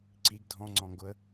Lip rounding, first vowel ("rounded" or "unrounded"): unrounded